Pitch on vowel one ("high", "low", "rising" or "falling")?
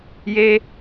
high